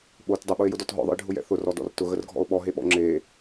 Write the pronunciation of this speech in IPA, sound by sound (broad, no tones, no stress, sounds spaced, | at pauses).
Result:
ɓ o t dˤ ə ɓ ʊ e̯ j ʊ d ɔ t ɦ ɔ̰ ðˤ ə̰ e̯ ɖʱ ʊ j ɛ̰ θ ʊ r ɔ d ɔ̰ r t ʊ ɣ ə r ɡʱ ɔ̰ o̯ ɓ ɔ ɦ e ɓ ɔ̰ ŋ͡ǁ e